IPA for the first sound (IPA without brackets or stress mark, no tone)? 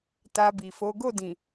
t